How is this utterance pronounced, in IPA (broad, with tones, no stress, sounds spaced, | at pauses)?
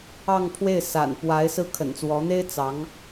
ɑ˥˧ ŋ pʰ w e˥˩ ɪ̯ s a̰˨˩ n p w a˧˥ ɪ̯ s ɹ̩˥˩ kʰ ə̰˨˩ n t͡s w ɔ˧˥ n̪ e˥ ɪ̯ t͡s ɑ˧˥ ŋ